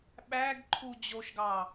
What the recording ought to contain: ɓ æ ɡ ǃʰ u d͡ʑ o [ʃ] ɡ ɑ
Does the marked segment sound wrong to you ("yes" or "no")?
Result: no